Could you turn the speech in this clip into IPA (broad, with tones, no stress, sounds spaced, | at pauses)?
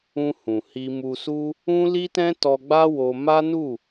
ũ˧ h ũ˨ h i˧ m u˧ s u˦ | ũ˦ l i˦ t ɛ̃˦ t ɔ˧ ɡ͡b a˦ w o˧ m a˦ n u˦˨